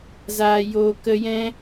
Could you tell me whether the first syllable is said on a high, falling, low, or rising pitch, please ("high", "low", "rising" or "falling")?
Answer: low